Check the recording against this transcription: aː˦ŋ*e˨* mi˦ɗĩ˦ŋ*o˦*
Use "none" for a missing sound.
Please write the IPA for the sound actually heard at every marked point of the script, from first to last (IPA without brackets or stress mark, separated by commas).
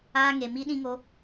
e˧, o˦